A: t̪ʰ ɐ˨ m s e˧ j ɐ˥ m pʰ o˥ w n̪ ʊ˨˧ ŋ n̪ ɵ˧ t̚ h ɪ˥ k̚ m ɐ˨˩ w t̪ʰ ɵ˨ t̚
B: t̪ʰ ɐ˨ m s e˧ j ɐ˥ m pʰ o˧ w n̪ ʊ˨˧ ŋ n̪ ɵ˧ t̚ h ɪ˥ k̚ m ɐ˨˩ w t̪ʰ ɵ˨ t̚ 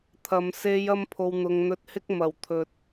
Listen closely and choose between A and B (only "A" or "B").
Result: B